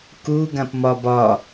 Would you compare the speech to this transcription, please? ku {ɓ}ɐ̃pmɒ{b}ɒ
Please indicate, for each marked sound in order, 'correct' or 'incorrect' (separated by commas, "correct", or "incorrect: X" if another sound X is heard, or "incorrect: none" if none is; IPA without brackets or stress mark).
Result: incorrect: ɡ, correct